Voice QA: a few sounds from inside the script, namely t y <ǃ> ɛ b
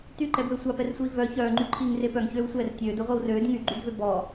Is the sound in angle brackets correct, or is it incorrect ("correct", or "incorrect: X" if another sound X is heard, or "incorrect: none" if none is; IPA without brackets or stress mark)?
correct